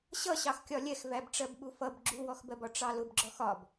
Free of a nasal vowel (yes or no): yes